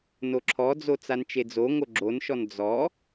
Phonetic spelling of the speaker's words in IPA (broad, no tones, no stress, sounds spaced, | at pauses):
n o ǁʰ ɔ d͡z o t͡s a n t͡ʃ e d͡z o ŋ o ɡ͡ǁ o n ʃ ɔ n d͡z ɔ